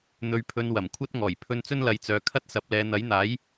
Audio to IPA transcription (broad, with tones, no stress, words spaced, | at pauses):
n̪ɵ˧ɥpʰɵ˧n wɐ˨˩mkʷʰɐ˥t̚ŋɔː˨˩j pʰɵ˧n t͡sɵ˥nlɐ˨˧jt͡sœː˨kʰɐ˥t̚ sɐ˨˥p̚lɛː˨˧ n̪ɐ˨˥jn̪aː˨˥j